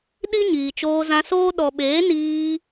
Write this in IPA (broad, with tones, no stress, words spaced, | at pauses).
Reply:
ɗi˦ɲiː˨ t͡ʃoː˧zã˧soː˦ ɗɔ˨ɓeː˨˦niː˧